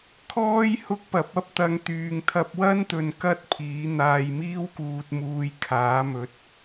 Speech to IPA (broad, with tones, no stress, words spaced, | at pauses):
kʰɔː˥j hʊ˥k̚pɐ˨˥p̚ɐ˥p̚ t̪ɐ˨˧ŋt̪yː˨ŋt̪ʰɐ˧p̚wɐ˥n t̪ɵ˧nkɐ˥t̚pʰiː˨˥ n̪aː˧jmiː˥wkuː˧t̚muː˧j kʰaː˨˥mɵ˨˥t̚